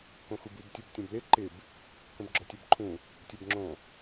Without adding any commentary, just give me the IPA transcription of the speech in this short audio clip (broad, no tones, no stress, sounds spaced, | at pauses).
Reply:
k õ x u b u b tʲ u b tʲ ɔ̃ b l ɪ ǃ ɪ b | k ə̃ b ɡ͡ǁ ɔ tʲ ɛ b ǃʰ ũ | tʲ ɛ b ŋ͡ǁ õ